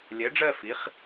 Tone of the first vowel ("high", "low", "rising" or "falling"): rising